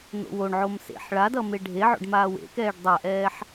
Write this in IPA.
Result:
n̪o̰woɳʕom sḛħ ɭadʌ meɖʱeʕo̰ɖ maːwḛkɛːɖ dˤaʔɛːħ

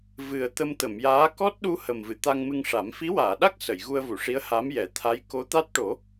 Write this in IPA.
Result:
vɨ˨˩ə̯ t̪ə˧mt̪ə˨˩˨mjaː˧˥ kɔ˦˥t̚ɗu˧ hə˨˩mvɨ˨˩˨ t̪a˧ŋmɨ˧ŋʂa˨˩˦m fi˧˥waː˨˩˨ɗa˦˥k̚ sə˨˩˨jɣu˧ə̯vu˨˩˨ʂi˧˥ə̯ ha˧˥mjɛ˨˩˦t̪ʰa˧˥j ko˧˥ t̪a˦˥t̚ʈo˨˩˦

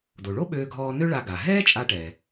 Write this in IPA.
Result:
do˩ɭo˥ɓøː˧ɡʱɔː˧ nø˥ɭa˧ɡa˩ ɦɛː˥t͡ʃʼa˧ʈɛ˩

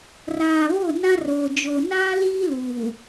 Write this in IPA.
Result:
raː˨βo˦˨ nã˦roː˨d͡ʒo˨ naː˦liː˦ luː˨

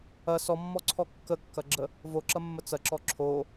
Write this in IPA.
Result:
ɐ sɔmːɔǀʰɔ kːəkːɐɡ͡ǁə | voǁɐmːə t͡sɐǁɔ ǁʰo

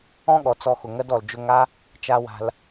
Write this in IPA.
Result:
ɔ̃˦ɠɔ˨˦t͡sɔ˧ xʊ˨ŋɜ˧dɔ˨ld͡ʒʊ˧ ŋa˦ | t͡ʃa˧ wa̤˧l

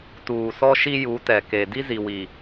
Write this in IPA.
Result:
tuː˨sɔ˦ʃi˦ ju˨˦tɛ˨ ke˨ di˦zi˨wi˨

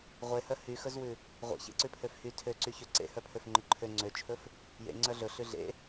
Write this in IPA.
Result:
ʁʷehœ hyxɵzwʉ | ʁʷḛçḛǀʉ pʰøfhy tʰøǀy çøǀḛ hœpʰøfŋ͡ǃɵǃʰø ŋ͡ǀøt͡ʃʰɵf | jḛ ŋ͡ǀœɮɵ ɬʉɮḛ

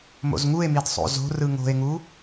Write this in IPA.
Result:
mo̰zŋue̯mid sˤo̰zo̤rɯ ŋo̤e̯ŋu

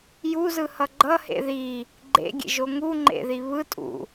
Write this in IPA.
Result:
juzɯhʌ ɡ͡ǃʌhḛ ði | ɡ͡ǃḛɡʲḛʒo ŋuŋ͡ǃḛði βɯ tʼṵ

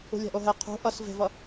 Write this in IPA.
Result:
ṳlʲa̤ʔoɦɛ qʰṳ ʔʌs ve̤vʌ

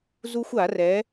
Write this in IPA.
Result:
zu˥xʷa˨˩˦ rɛ˩˥

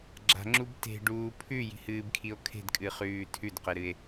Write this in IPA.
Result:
ɡ͡ǁa̤ŋ͡ǁub te̤ɖuː pʰʉji̤hɨːbkʰio̯ kʰe̤dkʼɨχʉː tʰʉdqeɾɨe̯

